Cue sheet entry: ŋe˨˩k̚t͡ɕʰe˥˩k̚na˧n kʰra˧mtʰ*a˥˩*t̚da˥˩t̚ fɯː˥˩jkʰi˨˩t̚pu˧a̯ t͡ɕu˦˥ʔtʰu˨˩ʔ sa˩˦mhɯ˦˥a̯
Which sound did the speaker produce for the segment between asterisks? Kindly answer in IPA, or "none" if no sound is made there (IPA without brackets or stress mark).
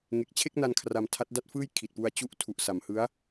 a˦˥